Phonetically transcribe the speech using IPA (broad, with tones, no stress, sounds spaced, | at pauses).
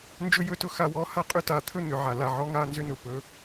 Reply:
n d͡ʒ ɵ˦ j ɵ˦˨ t ʊ˦ x a˧ w ɔ˨˦ h a˦ qʼ ʏ˦ t a˨˦ t̪ʰ ɵ˦ n̪ ʏ˨ ʕ a˨ l a˨ ʕ ɔ˨˦ ŋ a˦˨ n z ʏ˦ n ʊ˨ p ɵ˧